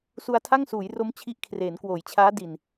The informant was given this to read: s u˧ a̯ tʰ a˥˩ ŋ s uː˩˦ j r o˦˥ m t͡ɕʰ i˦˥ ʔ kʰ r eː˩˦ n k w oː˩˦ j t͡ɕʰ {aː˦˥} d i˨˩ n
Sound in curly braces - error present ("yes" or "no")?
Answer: no